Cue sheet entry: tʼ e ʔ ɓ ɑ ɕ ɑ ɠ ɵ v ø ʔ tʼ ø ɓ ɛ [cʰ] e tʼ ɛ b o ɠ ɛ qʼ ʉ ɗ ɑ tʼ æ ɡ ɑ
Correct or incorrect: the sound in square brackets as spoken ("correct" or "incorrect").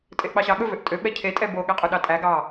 correct